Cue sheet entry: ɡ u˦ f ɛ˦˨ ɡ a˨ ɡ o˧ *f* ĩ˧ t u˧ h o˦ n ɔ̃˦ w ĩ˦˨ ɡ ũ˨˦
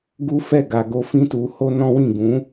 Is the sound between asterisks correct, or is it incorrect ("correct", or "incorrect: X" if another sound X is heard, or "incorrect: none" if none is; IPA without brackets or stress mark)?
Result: correct